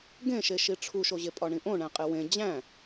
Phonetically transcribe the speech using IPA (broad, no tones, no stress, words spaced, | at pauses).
ɡẽʃe ʃiʈ͡ʂʰuʃoʑe pʼɒɳĩʔõ ɳæ̃qʼewẽ d͡ʑæ̃